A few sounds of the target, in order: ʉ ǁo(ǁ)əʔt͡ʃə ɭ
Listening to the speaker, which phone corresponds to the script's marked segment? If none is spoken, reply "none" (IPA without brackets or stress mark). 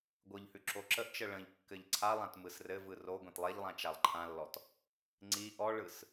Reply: ǁ